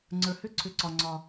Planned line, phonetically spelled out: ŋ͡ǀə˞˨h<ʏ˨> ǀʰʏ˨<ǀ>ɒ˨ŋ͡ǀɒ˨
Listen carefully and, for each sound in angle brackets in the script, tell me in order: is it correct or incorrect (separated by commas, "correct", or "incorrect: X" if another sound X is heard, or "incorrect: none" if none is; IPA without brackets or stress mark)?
incorrect: ʏ˦, correct